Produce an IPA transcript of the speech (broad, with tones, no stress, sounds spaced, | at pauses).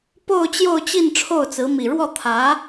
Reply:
p o˥˧ ʊ̯ t͡ɕ j o˥˧ ʊ̯ t͡ɕ i˥˧ n ʈ͡ʂʰ o˥˩ ʊ̯ t͡s ɹ̩˧˥ m i˨˩ ɻ w ɔ˥˩ t̪ʰ ä˧˥